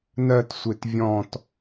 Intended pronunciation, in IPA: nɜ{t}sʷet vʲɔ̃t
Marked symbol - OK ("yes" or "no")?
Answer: yes